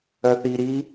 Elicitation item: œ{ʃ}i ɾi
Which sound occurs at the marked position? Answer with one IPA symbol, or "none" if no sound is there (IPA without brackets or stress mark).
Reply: θ